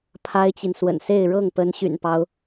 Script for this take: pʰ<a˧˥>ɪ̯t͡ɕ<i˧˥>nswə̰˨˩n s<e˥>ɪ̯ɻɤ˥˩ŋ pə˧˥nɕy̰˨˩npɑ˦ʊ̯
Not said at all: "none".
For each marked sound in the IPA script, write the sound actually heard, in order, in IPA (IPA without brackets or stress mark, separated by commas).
a˥, i˨, e˥˧